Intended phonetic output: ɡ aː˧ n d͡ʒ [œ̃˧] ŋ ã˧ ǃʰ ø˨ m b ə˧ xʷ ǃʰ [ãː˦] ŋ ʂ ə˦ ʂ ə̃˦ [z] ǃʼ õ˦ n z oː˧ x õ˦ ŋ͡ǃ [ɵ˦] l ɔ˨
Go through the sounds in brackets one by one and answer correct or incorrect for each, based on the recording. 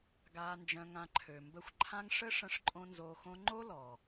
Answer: correct, incorrect: ã˦, incorrect: ʂ, incorrect: o˦

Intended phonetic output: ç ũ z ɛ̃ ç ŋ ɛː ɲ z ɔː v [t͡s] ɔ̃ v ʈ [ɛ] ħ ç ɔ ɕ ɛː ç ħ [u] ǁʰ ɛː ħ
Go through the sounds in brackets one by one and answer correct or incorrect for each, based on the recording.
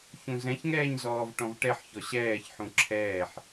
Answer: incorrect: ʈ, correct, incorrect: ũ

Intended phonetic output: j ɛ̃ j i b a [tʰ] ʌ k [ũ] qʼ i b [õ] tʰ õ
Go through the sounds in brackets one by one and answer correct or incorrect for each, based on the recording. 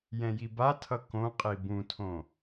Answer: correct, incorrect: õ, incorrect: ũ

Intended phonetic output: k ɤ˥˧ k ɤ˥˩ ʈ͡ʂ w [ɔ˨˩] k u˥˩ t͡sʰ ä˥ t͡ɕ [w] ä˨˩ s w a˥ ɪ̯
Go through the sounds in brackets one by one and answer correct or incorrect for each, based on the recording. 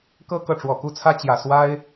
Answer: correct, incorrect: j

